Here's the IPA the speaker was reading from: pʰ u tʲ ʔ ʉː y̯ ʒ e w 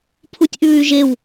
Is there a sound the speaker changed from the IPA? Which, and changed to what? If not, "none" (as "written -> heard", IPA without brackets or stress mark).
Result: none